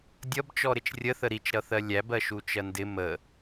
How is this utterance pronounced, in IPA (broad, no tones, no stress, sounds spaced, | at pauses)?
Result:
dʲ ʌ b t͡ʃ ɔ ɾ ɪ t͡ʃ rʲ ə θ ə ɾ i t͡ʃ ɾ ʌ θ ɜ lʲ æ b ɜ ʃ u t͡ʃ ɜ n d ɪ m ə